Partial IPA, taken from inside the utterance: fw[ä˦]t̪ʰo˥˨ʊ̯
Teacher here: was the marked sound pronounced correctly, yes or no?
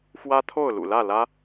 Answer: yes